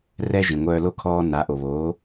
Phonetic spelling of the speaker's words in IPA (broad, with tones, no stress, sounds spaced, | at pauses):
r ɛ˥ ʒ ĩ˩ ŋʷ œː˧ l o˥˩ kʰ ɔː˧ n a˩˥ ʔ o˩ β oː˩˥